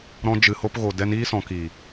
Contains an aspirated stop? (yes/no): no